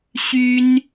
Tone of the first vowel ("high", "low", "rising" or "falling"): high